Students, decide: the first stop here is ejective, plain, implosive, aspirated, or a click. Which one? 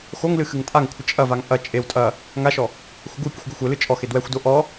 ejective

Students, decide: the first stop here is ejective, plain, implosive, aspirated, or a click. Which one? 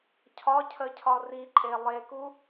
aspirated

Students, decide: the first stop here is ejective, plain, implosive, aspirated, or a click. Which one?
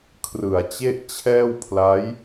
aspirated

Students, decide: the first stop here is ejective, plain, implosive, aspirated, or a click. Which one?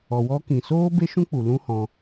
plain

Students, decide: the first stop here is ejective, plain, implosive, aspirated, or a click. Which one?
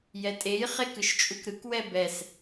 ejective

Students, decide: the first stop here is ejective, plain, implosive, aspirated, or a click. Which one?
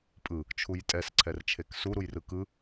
ejective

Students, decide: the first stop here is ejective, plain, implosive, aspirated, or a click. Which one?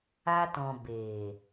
plain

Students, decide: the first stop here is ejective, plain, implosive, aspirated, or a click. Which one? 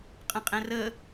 ejective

